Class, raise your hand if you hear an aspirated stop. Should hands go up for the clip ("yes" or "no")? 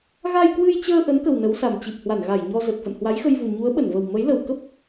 no